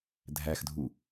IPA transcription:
dʱæxdʱu

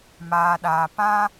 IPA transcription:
maː˧ɗaː˧ pã˦

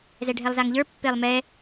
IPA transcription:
zɛɖʱɛlˠzaŋʎə˞ pːelˠmɛ

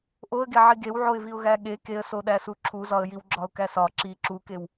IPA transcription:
ʔoə̯ɡe ʕiɡewʕoɪ̯viʊ̯ ɣæɠe keə̯soɗæsu ǁʰuzɒə̯ jiwɡ͡ǁɒʊ̯kæsɒ ǁi ǁukew

